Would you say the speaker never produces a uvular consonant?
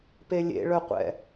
no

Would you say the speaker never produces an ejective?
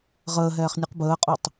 no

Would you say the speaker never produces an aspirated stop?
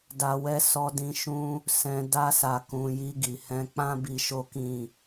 yes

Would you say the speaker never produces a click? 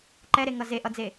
no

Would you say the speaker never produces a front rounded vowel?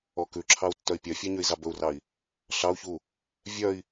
no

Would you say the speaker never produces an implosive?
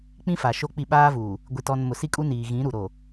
no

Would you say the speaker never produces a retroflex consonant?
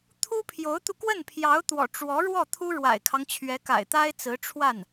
no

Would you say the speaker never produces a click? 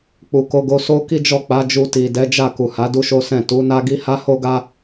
yes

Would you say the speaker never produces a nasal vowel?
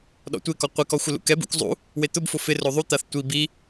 yes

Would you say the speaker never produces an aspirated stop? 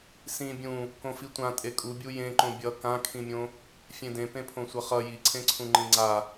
no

